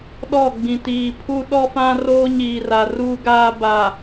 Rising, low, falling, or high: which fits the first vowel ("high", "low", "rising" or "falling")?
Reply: falling